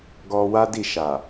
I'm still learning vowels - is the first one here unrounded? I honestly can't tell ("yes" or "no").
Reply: no